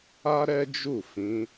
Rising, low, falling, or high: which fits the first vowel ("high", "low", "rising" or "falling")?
high